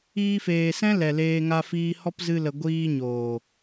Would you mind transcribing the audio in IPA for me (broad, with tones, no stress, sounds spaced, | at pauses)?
iː˧ f eː˨ s ɛ̃˦ l ɛ˨ l eː˧ ŋ a˧ f iː˧ h ɔ˦ p z ɨ˧ l ə˨ ɡʷ iː˧ ɲ oː˨